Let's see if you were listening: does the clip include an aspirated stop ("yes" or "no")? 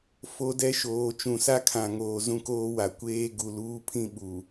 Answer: yes